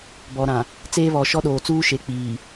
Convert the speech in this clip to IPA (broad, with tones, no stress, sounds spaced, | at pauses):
b ɔ˨ ɾ ã˨ | t͡s eː˦ β ɔ˨ ʃ ɔ˦ ɗ oː˨ t͡s uː˦ ʃ e˨ k͡p iː˨